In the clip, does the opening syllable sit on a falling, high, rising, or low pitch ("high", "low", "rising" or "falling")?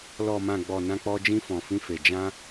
low